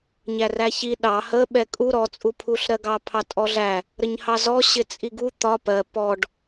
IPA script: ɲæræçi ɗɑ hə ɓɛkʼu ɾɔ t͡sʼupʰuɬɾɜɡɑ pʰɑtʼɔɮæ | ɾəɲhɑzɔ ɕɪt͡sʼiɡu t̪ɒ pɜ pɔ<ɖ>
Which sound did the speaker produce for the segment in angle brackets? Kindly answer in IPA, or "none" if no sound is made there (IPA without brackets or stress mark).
ɖ